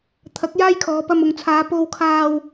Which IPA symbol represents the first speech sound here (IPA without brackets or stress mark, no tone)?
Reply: t̪ʰ